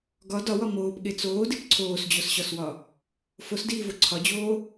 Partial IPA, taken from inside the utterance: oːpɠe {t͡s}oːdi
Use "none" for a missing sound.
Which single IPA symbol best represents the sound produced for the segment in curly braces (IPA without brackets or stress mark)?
t͡s